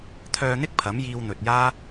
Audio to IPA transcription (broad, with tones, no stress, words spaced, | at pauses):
t̪ʰœː˧n̪ɪ˥k̚ pʰɐ˨˥mjiː˧wn̪ɵ˨t̚ jaː˥